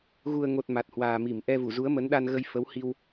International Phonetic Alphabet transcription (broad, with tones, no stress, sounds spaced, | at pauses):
ɣ u˨˩ ə̯ ŋ o˨˩ t̚ m a˨˩ t̚ h w aː˨˩ m i˧˩ m ʔ ɛ˧ v u˧˩ z u˨˦ ə̯ m ə˨˦ n ɗ a˧ n ɣ ə˧ j f ə˨˦ w h i˧ w